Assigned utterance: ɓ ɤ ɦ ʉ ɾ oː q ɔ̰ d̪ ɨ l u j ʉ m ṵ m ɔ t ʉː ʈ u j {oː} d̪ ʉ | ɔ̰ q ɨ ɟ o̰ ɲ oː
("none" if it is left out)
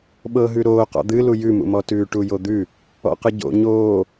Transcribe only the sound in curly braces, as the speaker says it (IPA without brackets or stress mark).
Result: o